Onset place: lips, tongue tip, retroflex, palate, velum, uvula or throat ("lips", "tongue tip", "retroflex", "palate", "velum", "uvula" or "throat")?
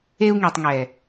velum